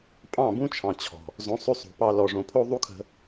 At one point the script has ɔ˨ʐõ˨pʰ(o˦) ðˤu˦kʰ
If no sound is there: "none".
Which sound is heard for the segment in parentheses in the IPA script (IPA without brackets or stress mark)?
o˦